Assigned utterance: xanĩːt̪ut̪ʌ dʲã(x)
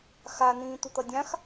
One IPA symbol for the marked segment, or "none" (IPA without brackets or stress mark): x